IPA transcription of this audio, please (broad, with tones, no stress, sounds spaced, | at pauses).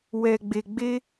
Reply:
w ɛ˨ ɡ͡b e˨ ɡ͡b e˧